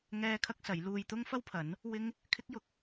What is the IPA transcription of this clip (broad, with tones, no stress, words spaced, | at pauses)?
ŋɛː˥kʰɐ˥k̚sɐ˨˥j luː˧jt̪ʊ˥ŋ fɐ˥wpʰɐ˨˥n | wɪ˥ŋ | kʰɪ˥k̚jʊ˨˥k̚